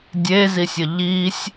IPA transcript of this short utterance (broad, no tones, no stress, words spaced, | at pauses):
dʲezisʲə ʎisʲ